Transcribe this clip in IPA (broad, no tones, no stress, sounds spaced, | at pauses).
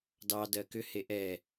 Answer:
d ɑ d ɜ k ʏ h e ʔ ɛ